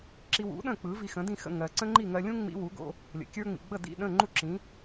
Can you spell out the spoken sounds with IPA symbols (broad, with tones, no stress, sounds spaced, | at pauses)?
ǁ i˧ w ṵ˩˥ ɗ ə̃˥˩ k͡p ɯ˩˥ v i˧ x ə̃˩˥ d ĩ˥˩ x ə̰˥˩ ŋ ɜ˩ ǀ ə̃˥ ŋ͡ǃ i˥˩ ŋ ɜ˧ lʲ ũ˥ ŋ͡m ḭ˧ w u˩˥ ɡ o̰˧ | lʲ ə̰˩ kʲ ə˞˥ ŋ͡m ḭ˩ ɡ͡b ə˥˩ d ḭ˥˩ ɗ ə̃˥˩ ŋ͡ǃ u˥˩ ǁ ĩ˩˥